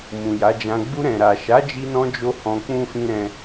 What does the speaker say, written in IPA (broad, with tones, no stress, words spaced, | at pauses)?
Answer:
mũ˨ja˨˦d͡ʒã˧ ɡ͡bu˧ɾɛ̃˨ɾa˨ ʃa˨˦d͡ʒi˧nɔ̃˧d͡ʒo˧ hɔ̃˧ k͡pũ˦fĩ˦ ɾɛ̃˦